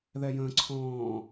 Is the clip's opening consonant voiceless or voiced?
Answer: voiced